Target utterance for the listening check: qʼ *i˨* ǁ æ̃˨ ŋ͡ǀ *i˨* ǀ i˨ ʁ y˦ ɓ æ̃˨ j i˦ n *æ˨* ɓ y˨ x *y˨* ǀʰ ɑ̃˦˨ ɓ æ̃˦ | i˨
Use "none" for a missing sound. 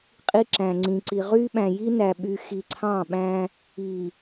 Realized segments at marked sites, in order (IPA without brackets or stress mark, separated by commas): i˦, ĩ˨, æ˨, i˨